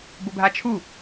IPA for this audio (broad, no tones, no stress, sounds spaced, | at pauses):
b ʊ bʱ a t͡ʃʰ u